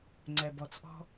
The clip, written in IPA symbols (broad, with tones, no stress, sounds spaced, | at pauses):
ŋ͡ǀ ɛ˩ b ɔ˩ t͡s ʔ ɔ̤˥